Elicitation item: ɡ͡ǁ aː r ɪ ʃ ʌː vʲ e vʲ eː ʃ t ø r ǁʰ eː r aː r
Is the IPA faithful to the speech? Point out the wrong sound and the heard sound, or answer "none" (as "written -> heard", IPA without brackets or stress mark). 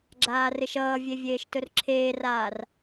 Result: ø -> ɵ